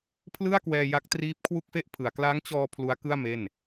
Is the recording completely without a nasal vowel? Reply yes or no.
yes